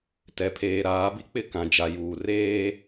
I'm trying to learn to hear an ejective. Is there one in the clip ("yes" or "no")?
no